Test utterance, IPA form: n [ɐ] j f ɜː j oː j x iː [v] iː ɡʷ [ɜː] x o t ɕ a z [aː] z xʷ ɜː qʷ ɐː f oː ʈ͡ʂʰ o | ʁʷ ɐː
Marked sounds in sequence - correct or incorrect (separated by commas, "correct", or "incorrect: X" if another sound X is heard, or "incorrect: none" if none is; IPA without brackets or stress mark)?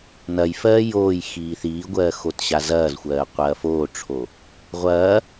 correct, incorrect: θ, correct, incorrect: ɐː